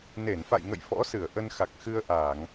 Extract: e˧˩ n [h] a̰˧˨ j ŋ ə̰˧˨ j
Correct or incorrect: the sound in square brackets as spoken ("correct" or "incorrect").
incorrect